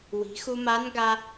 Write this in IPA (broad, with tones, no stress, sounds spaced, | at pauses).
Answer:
w i̤˩˧ x u˧ m a˧˥ n ɡ a˧